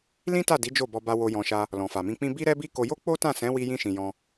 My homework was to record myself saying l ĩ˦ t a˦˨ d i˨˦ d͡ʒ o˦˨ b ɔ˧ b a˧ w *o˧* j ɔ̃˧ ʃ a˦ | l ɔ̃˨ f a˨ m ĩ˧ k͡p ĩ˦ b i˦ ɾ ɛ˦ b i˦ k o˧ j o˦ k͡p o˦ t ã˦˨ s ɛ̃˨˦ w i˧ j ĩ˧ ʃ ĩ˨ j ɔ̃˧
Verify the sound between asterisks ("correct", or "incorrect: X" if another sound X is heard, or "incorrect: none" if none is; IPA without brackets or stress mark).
correct